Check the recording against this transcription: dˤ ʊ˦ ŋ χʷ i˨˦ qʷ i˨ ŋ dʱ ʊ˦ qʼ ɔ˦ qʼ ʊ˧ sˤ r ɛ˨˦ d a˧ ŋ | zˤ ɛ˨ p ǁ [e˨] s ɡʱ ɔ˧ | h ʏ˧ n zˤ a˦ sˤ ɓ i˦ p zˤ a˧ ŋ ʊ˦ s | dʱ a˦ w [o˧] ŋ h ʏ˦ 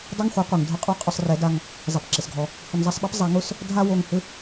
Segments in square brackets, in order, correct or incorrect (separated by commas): correct, correct